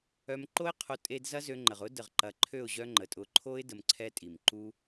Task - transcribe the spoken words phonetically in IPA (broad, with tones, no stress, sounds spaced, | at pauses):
œ˧ m ǃ o˦ ɪ̯ qʰ o˧ tʼ e˦ d z ɐ˦ z ø˧ ŋ͡ǃ ə˨ ʁ ʊ˦ d ə˨ ʁ ǃ ɐ˨˦ ǃʰ ø˦˨ ʊ̯ ʑ œ˦ ŋ͡ǃ ə˨ tʼ ʊ˧ ǃʰ o˦ ɪ̯ d ə˧ m ǀʰ ɛ˦ tʼ i˨ m ǃ u˦